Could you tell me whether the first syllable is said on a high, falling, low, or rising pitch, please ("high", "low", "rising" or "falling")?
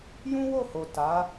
high